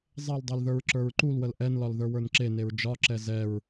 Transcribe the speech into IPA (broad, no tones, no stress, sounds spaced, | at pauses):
zˤ ɛ l dˤ e l ð ə˞ ɹ ǁ ə˞ ɹ ǃ u l w ə l ʔ ɛ n l ɒ l ð ə˞ w ə˞ n ǁ e n e ɹ d͡ʒ ɒ ǁ ɛ z ɛ ɹ